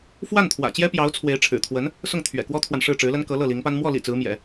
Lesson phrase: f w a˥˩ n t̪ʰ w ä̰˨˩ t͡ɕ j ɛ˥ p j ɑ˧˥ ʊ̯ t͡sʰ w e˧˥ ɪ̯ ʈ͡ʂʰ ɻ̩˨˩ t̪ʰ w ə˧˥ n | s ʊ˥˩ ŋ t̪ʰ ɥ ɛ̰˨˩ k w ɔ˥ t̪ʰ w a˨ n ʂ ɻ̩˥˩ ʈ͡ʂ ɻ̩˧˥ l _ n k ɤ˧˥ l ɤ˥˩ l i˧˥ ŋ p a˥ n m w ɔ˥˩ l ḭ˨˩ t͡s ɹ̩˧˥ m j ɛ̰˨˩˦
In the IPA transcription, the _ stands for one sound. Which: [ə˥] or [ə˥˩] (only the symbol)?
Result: ə˥